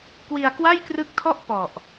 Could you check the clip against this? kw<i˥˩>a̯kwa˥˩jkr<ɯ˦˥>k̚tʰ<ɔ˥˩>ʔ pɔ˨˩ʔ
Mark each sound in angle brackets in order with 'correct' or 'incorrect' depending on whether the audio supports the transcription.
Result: incorrect: i˧, correct, correct

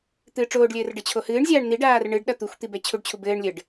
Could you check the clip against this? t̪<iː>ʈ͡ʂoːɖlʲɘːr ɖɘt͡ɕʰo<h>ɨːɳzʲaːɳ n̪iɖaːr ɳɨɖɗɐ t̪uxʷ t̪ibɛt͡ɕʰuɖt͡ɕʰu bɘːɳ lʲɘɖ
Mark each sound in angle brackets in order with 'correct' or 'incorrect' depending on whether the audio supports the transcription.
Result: incorrect: ɨː, correct

